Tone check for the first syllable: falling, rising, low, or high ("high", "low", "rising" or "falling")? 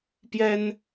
high